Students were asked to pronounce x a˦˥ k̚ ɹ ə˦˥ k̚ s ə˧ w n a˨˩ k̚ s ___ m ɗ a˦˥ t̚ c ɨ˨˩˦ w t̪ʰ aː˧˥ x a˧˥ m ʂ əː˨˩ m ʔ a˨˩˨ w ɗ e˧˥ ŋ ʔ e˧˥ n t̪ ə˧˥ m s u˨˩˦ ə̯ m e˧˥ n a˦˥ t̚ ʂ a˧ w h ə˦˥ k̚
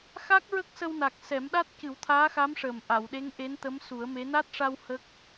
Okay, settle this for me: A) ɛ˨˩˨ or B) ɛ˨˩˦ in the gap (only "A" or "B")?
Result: B